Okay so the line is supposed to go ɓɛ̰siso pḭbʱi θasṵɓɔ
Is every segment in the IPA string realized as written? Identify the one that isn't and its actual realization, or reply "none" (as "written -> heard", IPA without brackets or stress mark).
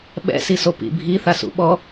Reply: none